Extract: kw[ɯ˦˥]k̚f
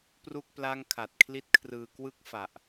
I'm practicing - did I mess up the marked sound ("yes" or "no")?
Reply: yes